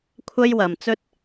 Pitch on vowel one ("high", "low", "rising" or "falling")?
high